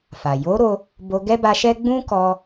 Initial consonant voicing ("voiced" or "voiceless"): voiceless